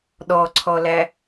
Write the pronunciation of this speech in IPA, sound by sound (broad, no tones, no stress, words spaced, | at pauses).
ɗɔǀʰɔlæ